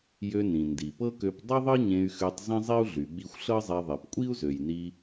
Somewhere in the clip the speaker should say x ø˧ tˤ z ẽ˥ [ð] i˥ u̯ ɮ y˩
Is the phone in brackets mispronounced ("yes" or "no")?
yes